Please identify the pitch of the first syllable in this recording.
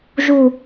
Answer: falling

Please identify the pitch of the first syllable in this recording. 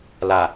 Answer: low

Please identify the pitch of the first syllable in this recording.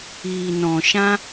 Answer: low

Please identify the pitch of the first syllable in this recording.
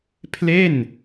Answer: falling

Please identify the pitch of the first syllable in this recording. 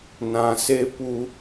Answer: low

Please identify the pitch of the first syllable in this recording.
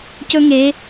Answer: high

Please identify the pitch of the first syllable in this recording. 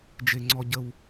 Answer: low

